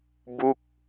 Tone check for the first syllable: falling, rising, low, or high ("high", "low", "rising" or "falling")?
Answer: falling